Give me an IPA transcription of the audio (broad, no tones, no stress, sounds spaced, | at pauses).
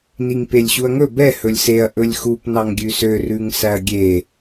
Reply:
n i ŋ p e lʲ ɕ u ɐ̯ ŋ ɵ b ɛ h ɵ lʲ s e ɐ̯ ʔ ɵ lʲ x u p n ɑ ŋ ɡʲ ʉ s ø r ʉ ŋ s æ ɐ̯ ɡʲ e